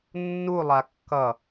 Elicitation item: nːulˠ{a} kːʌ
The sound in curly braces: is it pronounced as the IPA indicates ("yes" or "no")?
yes